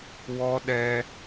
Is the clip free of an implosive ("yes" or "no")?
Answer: no